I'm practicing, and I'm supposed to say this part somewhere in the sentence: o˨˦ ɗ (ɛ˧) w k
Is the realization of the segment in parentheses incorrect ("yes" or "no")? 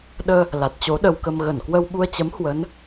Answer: yes